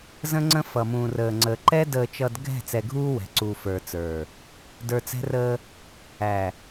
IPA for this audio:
z ə̃˦ ŋ͡ǀ ə̃˦ f ʌ˨ m ũː˨ r əː˨ ŋ͡ǀ əː˨ ǃ ɛ˦ d əː˨ t͡ʃ ʌ˨ d ɡʱ ɛ̤˦˨ t͡s ɛ˨ ɡʱ uː˦ w ɛ̤˨ ǀ uː˨ f ə˞˨ t͡s ə˞˨ | d ə˞˨ t͡s ɛ̤˦ r əː˦ | æ˨

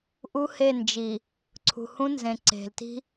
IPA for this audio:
ʔ u˦ h e˦˨ n d͡ʒ i˨ | ǀʰ ṳ˨ h ũ˦ n z ẽ˨ ǀ e̤˨ l t i̤˦

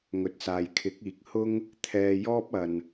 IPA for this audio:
ŋ ɵ˨˥ t̚ s aː˨ j kʰ ɪ˨˥ k̚ iː˨ k̚ h ʊ˥ ŋ | t̪ʰ ɛː˧ j ɔː˥ p̚ ɐ˧ n

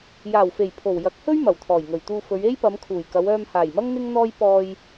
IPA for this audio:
j aː˨˩ w f e˨˩ j pʰ o˨˩ w j ɐ˨˥ k̚ h ɵ˥ ɥ m ɐ˨˩ w t̪ʰ ɔː˨˩ j ŋ ɵ˨˩ ɥ t̪ uː˧ f ɵ˨˧ ɥ e˥ j p ɐ˨˧ m kʰ uː˨˩ j k ɐ˨˧ w œː˧ m h aː˨˩ j m ɐ˥ ŋ n̪ ɪ˥ ŋ n̪ ɔː˥ j p ɔː˧ j

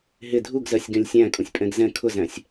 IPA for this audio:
ɦ ɪ dʱ u ɡ z ɜ sʲ ɡ ɛ̃ lʲ sʲ æ̃ kʼ ũ sʲ pʼ ɛ̃ ɡ z ɛ̃ kʰ ʊ z æ̃ sʲ

